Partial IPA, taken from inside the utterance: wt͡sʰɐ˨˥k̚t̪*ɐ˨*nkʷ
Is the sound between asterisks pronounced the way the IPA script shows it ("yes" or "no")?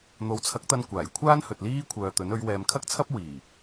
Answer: no